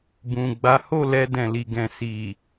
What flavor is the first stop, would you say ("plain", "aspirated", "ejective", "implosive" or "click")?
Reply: plain